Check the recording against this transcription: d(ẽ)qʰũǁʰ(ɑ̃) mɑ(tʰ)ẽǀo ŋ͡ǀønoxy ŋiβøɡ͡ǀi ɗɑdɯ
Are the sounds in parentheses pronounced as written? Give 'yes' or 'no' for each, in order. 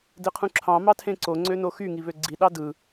no, yes, yes

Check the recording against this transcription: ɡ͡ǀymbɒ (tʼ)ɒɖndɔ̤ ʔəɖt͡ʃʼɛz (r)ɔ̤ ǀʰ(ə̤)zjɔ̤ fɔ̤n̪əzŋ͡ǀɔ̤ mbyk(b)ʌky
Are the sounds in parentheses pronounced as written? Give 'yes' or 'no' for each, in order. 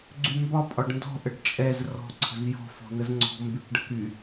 no, yes, yes, no

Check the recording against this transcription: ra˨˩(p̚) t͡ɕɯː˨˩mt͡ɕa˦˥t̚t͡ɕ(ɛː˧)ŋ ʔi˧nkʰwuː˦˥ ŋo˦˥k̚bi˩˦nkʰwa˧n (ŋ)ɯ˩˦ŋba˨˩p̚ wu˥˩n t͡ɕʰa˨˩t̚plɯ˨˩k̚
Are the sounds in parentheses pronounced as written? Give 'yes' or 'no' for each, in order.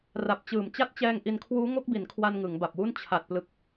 yes, yes, yes

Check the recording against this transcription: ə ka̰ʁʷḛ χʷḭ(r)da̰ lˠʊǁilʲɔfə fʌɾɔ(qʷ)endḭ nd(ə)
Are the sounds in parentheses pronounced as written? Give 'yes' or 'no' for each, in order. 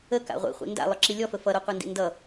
no, yes, no

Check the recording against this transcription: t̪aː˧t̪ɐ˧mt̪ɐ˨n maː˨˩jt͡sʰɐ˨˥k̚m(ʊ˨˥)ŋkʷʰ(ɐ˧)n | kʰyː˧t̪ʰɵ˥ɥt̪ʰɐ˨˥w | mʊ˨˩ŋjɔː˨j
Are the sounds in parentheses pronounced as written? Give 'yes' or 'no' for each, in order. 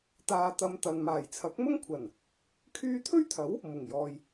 no, no

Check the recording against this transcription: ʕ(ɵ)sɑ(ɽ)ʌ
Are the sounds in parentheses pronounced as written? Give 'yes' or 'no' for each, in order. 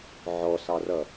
no, no

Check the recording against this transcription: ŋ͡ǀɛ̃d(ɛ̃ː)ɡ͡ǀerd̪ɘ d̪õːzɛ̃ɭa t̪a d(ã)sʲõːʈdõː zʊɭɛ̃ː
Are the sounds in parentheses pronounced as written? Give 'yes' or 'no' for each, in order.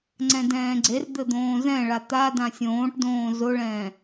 yes, yes

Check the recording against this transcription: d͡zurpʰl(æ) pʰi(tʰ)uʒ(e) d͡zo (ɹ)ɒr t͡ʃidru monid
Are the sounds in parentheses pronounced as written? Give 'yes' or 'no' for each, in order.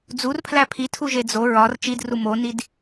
yes, yes, yes, yes

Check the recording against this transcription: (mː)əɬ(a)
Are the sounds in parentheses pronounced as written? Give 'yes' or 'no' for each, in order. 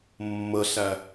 yes, no

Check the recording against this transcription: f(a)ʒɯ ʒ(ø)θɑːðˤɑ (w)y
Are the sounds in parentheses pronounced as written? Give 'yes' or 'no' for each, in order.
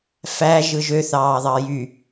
no, yes, no

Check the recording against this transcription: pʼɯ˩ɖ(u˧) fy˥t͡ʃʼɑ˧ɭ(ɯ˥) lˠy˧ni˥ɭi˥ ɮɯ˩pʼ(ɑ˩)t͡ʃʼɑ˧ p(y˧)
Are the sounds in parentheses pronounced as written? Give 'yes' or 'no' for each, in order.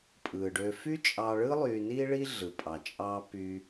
no, yes, yes, yes

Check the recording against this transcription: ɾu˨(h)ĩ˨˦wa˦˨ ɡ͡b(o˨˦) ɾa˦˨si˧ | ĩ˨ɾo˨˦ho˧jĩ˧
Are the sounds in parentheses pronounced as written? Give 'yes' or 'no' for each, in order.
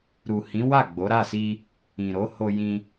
yes, yes

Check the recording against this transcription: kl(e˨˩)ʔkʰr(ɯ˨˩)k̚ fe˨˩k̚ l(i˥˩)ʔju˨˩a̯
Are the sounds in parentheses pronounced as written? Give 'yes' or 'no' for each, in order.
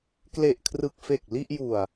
yes, yes, yes

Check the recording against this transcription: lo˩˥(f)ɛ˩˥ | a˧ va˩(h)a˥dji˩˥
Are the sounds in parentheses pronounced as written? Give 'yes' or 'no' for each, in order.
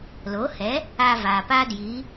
no, no

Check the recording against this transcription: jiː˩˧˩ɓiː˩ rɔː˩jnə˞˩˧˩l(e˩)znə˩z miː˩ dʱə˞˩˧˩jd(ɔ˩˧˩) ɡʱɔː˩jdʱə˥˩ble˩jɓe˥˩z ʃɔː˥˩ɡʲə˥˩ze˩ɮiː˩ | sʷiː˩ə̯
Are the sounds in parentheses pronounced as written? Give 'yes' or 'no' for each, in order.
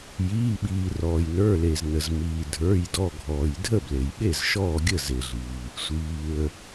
yes, yes

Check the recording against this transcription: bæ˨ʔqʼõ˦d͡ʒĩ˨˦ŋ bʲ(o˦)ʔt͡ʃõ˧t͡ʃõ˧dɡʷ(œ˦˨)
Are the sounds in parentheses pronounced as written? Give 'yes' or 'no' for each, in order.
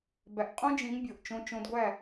no, no

